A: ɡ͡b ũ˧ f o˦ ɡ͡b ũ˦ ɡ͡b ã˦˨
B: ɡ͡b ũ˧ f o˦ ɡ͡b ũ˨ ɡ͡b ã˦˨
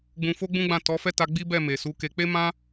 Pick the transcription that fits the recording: A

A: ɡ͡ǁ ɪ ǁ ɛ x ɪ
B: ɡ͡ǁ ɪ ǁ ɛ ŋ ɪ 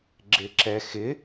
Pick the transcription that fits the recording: A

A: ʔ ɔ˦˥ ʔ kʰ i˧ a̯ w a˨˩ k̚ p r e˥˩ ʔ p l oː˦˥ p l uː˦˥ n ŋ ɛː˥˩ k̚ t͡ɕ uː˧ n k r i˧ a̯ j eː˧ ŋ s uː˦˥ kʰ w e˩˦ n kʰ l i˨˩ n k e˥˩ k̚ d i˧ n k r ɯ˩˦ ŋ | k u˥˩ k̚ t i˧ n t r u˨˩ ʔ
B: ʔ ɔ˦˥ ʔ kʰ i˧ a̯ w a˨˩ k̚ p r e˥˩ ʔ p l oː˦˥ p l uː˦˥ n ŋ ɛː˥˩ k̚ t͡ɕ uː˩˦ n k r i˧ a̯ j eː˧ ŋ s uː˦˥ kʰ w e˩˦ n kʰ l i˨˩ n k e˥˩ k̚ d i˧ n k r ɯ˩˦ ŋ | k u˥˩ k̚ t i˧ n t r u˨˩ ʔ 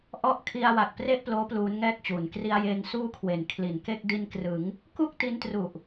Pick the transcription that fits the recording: B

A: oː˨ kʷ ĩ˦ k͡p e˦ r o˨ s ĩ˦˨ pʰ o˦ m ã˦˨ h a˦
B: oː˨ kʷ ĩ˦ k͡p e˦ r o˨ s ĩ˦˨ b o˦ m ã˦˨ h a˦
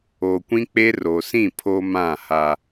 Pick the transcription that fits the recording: A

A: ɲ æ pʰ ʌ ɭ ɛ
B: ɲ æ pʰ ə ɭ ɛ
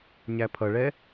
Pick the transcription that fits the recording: A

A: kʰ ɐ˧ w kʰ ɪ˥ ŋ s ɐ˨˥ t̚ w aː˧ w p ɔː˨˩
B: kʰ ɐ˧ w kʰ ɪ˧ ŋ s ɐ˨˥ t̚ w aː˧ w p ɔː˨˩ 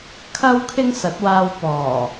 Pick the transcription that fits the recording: B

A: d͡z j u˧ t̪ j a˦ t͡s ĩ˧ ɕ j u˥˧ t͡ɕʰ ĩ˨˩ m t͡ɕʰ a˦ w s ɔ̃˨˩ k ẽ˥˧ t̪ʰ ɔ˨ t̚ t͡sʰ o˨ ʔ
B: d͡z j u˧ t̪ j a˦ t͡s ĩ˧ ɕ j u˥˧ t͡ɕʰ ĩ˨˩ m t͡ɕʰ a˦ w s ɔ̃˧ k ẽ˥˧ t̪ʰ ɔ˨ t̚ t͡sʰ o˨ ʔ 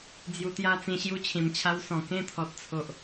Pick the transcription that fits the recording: A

